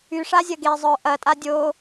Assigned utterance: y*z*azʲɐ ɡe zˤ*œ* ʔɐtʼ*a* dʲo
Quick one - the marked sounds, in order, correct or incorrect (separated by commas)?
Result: incorrect, correct, correct